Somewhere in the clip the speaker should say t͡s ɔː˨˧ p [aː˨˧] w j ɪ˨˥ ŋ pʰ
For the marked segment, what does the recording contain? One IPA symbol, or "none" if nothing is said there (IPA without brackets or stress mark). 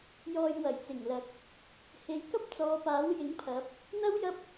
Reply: aː˨˥